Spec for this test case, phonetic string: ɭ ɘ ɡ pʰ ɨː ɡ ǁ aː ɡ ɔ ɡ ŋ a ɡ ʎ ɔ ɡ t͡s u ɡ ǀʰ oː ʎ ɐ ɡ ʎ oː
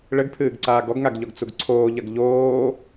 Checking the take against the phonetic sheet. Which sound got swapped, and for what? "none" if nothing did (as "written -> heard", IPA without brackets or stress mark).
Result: ǁ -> ǀ